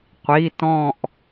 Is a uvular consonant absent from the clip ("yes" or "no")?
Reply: no